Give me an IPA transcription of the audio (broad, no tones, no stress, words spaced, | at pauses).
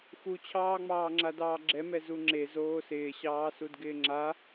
xut͡ɕʰɑːŋ͡mɑːŋ͡ǁa dɑːɡ͡ǁɛmɛ zuŋ͡ǁez oːsɪːɕɑːsud ɡɪːŋ͡ǁa